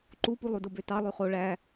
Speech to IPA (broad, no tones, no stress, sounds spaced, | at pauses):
ǃ u p u lˠ u d o b ø t ɑ lˠ y χ o ɭ æ